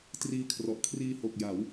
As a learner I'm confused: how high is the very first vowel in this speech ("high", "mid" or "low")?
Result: high